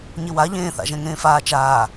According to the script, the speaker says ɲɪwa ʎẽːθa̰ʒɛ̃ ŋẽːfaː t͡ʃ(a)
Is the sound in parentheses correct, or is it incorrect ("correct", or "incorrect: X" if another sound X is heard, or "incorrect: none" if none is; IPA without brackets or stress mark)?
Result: incorrect: aː